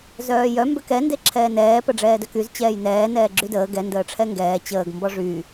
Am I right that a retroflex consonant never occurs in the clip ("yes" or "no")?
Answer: no